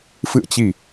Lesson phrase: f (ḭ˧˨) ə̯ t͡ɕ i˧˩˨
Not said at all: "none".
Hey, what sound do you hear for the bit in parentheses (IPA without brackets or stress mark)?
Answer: ɨ̰˧˨